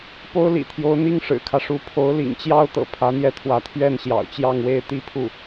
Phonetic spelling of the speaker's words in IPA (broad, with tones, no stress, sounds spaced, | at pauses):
p o˥ ʊ̯ l ḭ˨˩ t̪ʰ j o˧˥ ʊ̯ n̪ i˥˩ ŋ ʂ ɻ̩˨˩ kʰ ä˦ ʂ u˧˥ pʰ o˧˥ ʊ̯ l ḭ˨˩ ŋ t͡ɕ j ɑ˥ ʊ̯ t̪ ɤ̰˨˩ pʰ ä˧˥ n̪ j ɛ˥˩ t̪ʰ w ä˧˥ t̪ʰ ɥ ɛ˥˩ n ɕ j ɑ̰˨˩ ʊ̯ t͡ɕ j ɑ˥˧ ŋ w e˥˧ ɪ̯ t̪ i˥˧ pʰ u˥˩